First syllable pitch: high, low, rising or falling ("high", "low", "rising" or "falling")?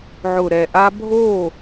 low